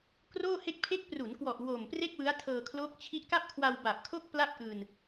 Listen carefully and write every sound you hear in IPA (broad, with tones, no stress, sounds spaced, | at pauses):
k r oː˥˩ h e˥˩ k̚ pʰ e˦˥ k̚ p r u˩˦ n k w ɔ˨˩ ʔ w o˨˩ m p r e˥˩ k̚ w ɯ˦˥ a̯ tʰ ɤː˧ kʰ l oː˦˥ k̚ t͡ɕʰ i˦˥ ʔ k a˥˩ p̚ kʰ w a˧ w b a˨˩ p̚ kʰ o˥˩ k̚ p l a˥˩ p̚ ʔ ɯː˧ n